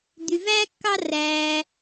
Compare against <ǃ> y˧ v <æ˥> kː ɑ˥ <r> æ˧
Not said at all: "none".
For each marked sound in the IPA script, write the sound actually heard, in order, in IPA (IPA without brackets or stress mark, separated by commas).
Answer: d̪, æ˥, r